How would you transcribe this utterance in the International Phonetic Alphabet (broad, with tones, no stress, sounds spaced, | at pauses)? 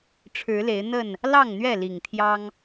ʈ͡ʂʰ ɻ̩˨˦ l e˨˦ ɪ̯ n̪ ə˥˨ n | l ɑ˥˨ ŋ n̪ ɥ ɛ˥˨ l i˨˩ ŋ t̪ʰ j ɑ˦ ŋ